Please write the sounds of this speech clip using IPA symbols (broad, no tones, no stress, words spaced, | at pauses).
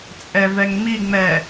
t͡sʼɛvɛŋŋ͡mi ŋ͡mɛ